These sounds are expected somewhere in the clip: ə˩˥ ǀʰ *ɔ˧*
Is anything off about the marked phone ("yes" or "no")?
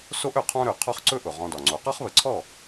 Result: yes